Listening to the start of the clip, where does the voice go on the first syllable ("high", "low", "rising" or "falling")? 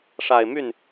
low